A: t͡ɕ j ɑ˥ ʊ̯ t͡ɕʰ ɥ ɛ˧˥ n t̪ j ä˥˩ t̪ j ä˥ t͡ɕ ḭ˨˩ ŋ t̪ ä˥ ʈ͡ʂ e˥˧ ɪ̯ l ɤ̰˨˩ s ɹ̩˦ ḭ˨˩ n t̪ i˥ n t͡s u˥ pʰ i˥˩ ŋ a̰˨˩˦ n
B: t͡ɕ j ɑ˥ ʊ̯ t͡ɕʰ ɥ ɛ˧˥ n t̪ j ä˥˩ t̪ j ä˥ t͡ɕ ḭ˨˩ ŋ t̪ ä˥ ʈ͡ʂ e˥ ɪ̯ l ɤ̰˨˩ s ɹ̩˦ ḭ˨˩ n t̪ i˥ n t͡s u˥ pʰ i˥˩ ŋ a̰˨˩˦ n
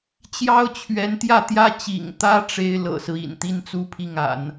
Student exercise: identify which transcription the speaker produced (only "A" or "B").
B